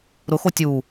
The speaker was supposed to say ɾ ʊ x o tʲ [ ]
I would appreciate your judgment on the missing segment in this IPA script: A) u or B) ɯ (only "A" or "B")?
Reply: A